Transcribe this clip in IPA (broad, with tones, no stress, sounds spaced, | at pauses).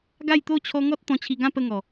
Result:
ɡ a˥˧ j t̪ o˥˧ t͡ɕʰ ɔ˧ ŋ ɔ˦ t̚ t̪ ɔ̃˧ t͡ɕʰ i˧ ɡ ã˥˧ p ə˥˧ ŋ ɔ˨˩